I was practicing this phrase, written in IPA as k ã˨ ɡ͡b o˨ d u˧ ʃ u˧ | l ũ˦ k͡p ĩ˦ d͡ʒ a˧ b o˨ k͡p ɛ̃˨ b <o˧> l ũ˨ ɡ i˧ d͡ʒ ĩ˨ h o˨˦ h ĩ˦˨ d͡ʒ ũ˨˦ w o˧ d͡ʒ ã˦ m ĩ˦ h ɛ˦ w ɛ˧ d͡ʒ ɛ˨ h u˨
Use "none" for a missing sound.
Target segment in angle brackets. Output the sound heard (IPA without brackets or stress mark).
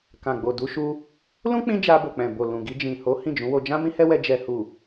o˨